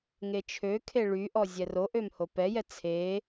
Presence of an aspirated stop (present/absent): present